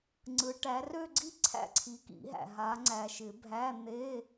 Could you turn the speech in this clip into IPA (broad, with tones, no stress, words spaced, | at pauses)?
ŋ͡ǀɯ˨˦ ʈæ˨˦rø˥˧ ɡ͡ǀi˥˧ ǀʰæ̰˥˧ǀʰi˨˦ kḭ˨˩˦ɦæ̰˨ ɦa˨˦ŋ͡ǀæ˨ʃɪ˨˩˦bʱæ˧˥˧ n̪e˧˥˧